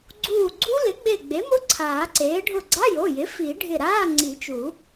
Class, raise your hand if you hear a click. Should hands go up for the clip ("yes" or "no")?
yes